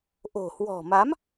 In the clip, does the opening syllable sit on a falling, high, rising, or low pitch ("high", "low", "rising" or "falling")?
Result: low